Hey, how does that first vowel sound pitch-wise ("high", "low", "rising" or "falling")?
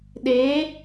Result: rising